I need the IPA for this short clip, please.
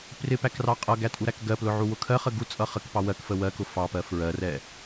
prɪpækrɑ qʼʌɡætʼuɾæk ɡɜplʊʕuwʊ kʰɜχə ɡut͡sʼʌ χəkpɑ wɜkfə wɜkʊ fɑpɜ fɹɜrɛ

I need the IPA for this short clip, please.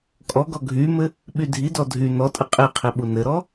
kʼɔɡɔ ɡʱymɘ | ɓydʱidɔ dʱy nɔtʼɘ qʼiqʰi ɓunɘɾɔ

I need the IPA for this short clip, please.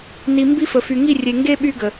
ni˨mbi˦fə˨fy˨ ŋi˦˨rʲe˨ŋɡe˦ ɓy˦ɡə˨

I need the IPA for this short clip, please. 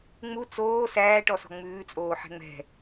ŋ͡mu t͡soː sæːʈɔsɔ̤ ŋ͡mʉːt͡sʼoː ħɛ̤ŋ͡mɛ̤

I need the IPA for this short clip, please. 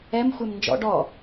ɛmxʷem nd͡ʒɔ̰ ɖɔ

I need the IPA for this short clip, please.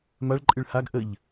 maɭǃʼɨɭ haɡ ʔəʎ

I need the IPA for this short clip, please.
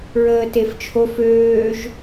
ɹəːteft͡ʃʰof øːʒ

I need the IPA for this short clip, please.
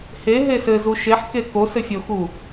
he ɦesɘzu ʃeħke ko sɘfʲoxu

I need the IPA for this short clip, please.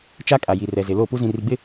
t͡ʃa˦ kʼa˨ji˨rɛ˨zɪ˨ lo˦˨ pu˦zĩ˨ri˨ɡ͡bɪ˦

